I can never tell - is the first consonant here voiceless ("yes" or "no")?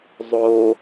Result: no